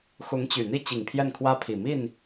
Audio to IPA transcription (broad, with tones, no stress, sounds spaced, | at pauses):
x ʊ˧˥ ŋ t͡ɕ y˨˩ n̪ i˥ t͡ɕ i˨˩ ŋ pʰ j ɛ˥˩ n kʰ w ä˥ pʰ i˨˩ m i˥˩ n